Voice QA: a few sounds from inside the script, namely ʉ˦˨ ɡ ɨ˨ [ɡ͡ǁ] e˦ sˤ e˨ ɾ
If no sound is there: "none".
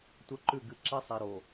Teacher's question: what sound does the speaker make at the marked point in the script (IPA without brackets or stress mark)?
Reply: ǁ